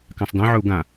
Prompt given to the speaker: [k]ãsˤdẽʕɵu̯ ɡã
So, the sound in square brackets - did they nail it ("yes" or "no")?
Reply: yes